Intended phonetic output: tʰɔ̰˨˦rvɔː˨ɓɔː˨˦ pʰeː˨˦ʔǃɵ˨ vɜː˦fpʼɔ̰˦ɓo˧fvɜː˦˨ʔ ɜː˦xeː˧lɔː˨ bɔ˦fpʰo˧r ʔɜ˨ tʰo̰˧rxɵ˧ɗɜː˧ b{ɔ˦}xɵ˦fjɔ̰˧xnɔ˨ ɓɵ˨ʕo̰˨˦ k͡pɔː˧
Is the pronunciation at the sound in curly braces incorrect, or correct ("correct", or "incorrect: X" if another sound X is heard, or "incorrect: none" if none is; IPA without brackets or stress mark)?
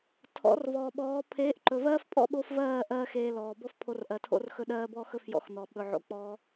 correct